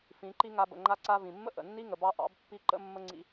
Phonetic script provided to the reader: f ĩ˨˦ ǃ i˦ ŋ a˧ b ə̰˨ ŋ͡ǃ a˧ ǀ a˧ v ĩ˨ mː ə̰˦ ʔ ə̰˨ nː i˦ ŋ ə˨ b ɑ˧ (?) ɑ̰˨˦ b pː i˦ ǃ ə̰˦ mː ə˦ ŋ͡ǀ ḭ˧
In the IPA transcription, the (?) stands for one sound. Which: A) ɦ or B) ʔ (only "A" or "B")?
B